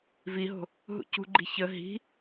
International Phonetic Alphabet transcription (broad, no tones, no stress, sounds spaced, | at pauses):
v i ɦ o̤ | ɦ ṵ c ṳ ɡ͡ǃ i̤ ç ə ɦ i̤